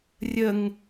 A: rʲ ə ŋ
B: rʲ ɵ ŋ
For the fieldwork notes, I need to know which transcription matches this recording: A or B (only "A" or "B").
A